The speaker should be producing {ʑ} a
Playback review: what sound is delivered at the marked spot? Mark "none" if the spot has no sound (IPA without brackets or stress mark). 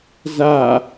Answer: z